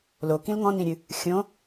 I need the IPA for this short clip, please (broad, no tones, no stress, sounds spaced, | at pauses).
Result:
l o k ĩ l ŋ ɔ̃ n ĩ ɾʲ ɨ | xʲ õ